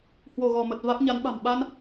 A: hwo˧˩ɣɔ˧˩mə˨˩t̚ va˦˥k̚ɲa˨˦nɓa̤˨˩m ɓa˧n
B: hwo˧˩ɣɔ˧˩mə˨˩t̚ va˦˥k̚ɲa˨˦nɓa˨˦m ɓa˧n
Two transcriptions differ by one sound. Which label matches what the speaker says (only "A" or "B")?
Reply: A